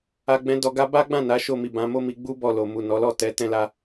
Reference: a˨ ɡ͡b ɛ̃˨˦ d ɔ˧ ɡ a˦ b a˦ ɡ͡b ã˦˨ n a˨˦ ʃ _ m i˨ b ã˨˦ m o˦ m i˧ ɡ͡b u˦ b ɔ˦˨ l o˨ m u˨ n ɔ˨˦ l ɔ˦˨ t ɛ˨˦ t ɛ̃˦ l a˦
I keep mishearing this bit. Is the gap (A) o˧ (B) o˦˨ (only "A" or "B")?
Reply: B